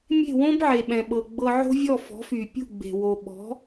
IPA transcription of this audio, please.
mʲ e̤˥˩ w õ˥ b ʕ e˩ ɓ ɛ̃˩ ɓ ɤ˩ ɡ͡b ɤ˧ ʕ o̤˥ vʲ ɔ˥˩ f ɔ̤˩˥ f y˩ pʲ ṳ˥˩ ɡ͡b e̤˩ w o˩ ɓ ɔ̤˩˥

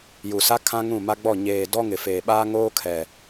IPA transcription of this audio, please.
j u˨ s a˦ kʰ ã˦ ŋ ũ˦˨ m a˦ ɡ͡b ɔ˦˨ ɲ eː˨ d ɔ˦ ŋ ɪ˨ f eː˨ ɓ aː˦ ŋ oː˦ kʰ ɛ˨

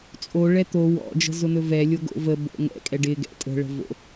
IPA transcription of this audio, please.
t͡sʼ o ɭ ɛ t̪ o w ɔ̰ d͡ʒ ə̤ z ʊ n̪ ɵ v ɛ lʲ o ɡ o̰ v ə b o̰ ŋ ɛ̰ kʼ ɛ ɖ ɪ ɡ ɛ̰ tʼ ə̤ ɭ ə̤ v o̰

